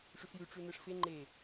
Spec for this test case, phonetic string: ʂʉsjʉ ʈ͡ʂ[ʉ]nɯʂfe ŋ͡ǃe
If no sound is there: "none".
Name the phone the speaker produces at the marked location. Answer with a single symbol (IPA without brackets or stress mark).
ʉ